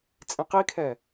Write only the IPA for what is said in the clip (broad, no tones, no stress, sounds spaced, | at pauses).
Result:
t͡sʼ ĩ q i kʰ ɛ